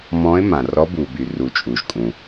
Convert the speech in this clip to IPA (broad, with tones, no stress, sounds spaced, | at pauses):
m ɔ̃˧˥ ɪ̯ m ã˩ r ɔ˧˥ b u˩ b y˩ r u˩ t͡ʃʼ u˩ ʒ kʼ ũ˩